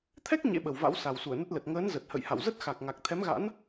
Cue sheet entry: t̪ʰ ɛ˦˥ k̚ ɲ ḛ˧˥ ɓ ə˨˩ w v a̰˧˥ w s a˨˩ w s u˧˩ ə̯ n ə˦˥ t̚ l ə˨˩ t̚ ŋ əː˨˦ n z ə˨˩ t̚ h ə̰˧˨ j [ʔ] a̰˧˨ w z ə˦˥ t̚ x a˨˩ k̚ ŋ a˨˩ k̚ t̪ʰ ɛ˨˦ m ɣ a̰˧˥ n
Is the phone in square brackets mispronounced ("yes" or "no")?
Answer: yes